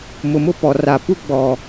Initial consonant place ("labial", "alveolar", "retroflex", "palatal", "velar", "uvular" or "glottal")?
labial